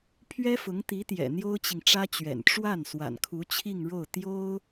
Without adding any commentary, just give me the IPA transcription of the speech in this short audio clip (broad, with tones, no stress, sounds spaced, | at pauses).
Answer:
pʰ ɥ ɛ˥ f ʊ˧˥ ŋ t̪ i˧˥ t̪ j ɛ̰˨˩ n̪ j o˥ ʊ̯ t͡ɕ i˨ ŋ ʈ͡ʂ ä˥ t͡ɕ ɥ ɛ̰˨˩ n ʈ͡ʂ w a˥˩ n s w a̰˨˩ n kʰ u˧˥ t͡ɕʰ i˥˧ ŋ ɻ o˥˩ ʊ̯ t̪ j o˥ ʊ̯